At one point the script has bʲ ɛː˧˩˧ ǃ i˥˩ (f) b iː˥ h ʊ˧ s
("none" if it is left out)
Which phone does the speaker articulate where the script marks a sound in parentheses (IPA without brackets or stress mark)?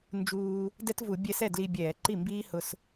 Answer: m